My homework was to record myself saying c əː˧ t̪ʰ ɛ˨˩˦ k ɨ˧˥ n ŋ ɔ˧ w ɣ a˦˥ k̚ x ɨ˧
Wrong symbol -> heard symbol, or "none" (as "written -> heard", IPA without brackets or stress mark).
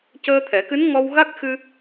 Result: none